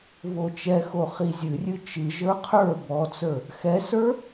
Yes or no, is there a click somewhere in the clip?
no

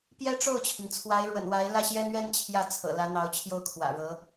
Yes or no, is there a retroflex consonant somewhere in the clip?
yes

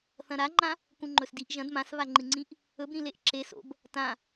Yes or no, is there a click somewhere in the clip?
yes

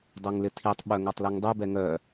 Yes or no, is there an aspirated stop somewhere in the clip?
yes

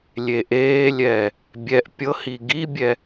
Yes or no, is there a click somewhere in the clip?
no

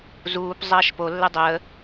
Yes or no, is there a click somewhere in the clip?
no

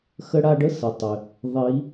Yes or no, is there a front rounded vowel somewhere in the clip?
yes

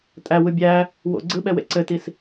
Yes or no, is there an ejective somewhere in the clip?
yes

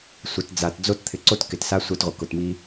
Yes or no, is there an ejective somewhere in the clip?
no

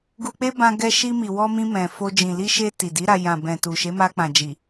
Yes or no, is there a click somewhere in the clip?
no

